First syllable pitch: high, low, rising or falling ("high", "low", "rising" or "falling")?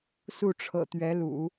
falling